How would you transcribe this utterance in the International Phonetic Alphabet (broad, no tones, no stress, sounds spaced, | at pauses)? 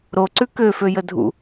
ɾ o ǀ ʉ k ø f ø j ə dʱ ṵ